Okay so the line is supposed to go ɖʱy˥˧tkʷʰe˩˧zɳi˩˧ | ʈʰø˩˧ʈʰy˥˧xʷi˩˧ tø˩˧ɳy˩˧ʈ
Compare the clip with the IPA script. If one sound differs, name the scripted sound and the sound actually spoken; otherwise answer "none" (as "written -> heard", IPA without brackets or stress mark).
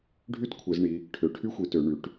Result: none